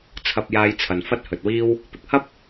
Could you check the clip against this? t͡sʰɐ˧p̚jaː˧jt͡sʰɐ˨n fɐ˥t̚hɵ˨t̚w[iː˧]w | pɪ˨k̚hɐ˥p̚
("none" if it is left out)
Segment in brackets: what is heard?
iː˥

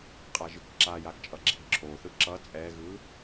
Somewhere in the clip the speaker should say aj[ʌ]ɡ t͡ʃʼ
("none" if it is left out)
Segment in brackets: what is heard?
a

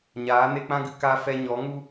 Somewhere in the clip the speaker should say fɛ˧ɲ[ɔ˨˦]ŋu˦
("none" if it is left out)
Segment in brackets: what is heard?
ɔ˨˦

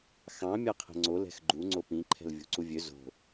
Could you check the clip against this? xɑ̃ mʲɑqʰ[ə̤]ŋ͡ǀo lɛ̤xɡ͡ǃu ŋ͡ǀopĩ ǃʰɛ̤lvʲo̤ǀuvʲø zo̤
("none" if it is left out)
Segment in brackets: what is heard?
ɛ̤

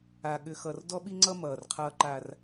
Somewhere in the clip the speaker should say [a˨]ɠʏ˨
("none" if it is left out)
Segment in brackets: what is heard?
a˨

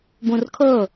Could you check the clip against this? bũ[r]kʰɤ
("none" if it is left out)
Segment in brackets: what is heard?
r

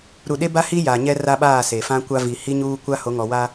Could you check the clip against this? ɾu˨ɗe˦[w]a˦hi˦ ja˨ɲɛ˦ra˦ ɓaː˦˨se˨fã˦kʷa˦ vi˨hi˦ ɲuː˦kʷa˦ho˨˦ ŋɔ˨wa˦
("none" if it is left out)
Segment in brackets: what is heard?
b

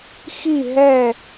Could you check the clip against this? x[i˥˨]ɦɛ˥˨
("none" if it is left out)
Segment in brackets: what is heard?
i˥˨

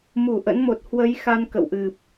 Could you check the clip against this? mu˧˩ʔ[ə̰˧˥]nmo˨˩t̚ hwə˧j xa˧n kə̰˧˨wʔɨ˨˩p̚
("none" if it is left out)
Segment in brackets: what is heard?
ə̰˧˥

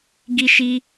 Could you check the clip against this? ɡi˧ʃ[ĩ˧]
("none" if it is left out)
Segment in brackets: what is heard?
i˧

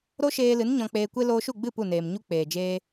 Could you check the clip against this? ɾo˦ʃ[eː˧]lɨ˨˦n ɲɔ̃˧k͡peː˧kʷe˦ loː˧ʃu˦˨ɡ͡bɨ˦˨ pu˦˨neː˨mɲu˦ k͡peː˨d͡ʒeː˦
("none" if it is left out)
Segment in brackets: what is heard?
eː˧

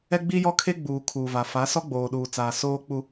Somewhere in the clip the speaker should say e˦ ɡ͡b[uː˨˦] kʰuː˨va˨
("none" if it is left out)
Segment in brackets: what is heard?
uː˨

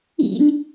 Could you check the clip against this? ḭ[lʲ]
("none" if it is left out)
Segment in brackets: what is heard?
lʲ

